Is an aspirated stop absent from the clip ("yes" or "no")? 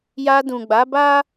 yes